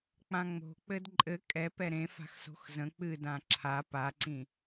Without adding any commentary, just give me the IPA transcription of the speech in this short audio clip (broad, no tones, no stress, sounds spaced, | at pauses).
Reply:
k͡p ã ŋ͡m o̤ k͡p ɘ d ǃʼ ɘ kʼ ɛ p ɛ ɾ ẽ f a̤ x s o̤ x z ə̃ k͡p ɨ d ã ǁʰ a p a ǀ ĩ